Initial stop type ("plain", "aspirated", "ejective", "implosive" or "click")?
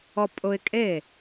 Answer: ejective